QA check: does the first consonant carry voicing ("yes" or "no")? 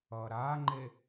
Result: yes